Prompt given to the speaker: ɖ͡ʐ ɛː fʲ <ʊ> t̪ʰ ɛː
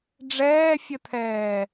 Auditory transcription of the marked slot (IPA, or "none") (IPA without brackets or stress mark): ə